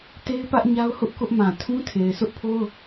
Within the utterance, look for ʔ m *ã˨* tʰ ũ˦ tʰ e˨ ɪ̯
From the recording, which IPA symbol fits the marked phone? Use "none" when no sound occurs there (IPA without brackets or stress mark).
ã˨